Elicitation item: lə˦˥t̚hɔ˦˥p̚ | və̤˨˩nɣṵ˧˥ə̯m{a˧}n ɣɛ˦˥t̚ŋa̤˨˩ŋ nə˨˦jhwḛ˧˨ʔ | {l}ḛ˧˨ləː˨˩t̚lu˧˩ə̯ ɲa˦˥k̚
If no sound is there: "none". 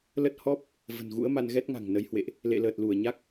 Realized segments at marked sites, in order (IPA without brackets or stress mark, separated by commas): a˧, l